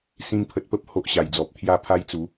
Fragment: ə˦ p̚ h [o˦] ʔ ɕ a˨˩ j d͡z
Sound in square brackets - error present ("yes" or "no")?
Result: no